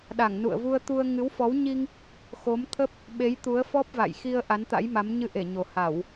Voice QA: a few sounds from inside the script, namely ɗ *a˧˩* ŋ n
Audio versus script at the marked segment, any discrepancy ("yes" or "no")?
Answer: no